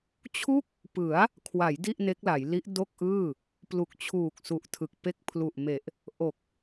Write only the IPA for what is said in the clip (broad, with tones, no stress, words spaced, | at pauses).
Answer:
t͡ɕʰu˥˩k̚ | pɯ˩˦a̯ | kʰwa˩˦j di˥˩ʔne˦˥k̚la˩˦jli˦˥ʔ do˥˩k̚ʔɯː˥˩ | plu˨˩k̚t͡ɕʰuː˨˩k̚su˨˩ʔtʰɯ˨˩k̚ pe˦˥k̚pʰlu˨˩ʔme˨˩ʔ | ʔo˨˩k̚